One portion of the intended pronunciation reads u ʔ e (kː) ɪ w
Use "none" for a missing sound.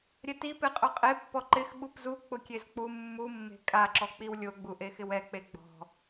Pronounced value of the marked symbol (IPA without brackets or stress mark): x